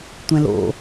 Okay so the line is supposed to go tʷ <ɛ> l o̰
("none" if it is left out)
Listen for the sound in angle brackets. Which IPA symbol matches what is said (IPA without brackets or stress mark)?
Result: ɛ̃